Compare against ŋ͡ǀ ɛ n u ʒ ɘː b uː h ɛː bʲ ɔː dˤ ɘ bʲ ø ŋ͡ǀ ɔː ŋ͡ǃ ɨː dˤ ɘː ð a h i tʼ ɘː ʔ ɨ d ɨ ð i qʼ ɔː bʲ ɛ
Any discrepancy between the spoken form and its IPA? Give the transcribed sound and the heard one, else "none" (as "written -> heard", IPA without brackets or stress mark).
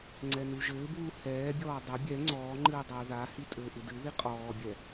ø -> ɛ